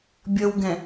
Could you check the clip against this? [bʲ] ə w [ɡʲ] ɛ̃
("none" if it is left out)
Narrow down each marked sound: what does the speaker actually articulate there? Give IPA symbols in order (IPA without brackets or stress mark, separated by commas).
bʲ, ɡ